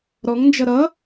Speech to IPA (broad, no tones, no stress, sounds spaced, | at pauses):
ɾ ɔ ŋ n d͡ʒ ʌ ɾ ʌ